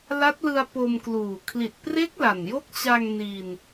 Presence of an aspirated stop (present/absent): present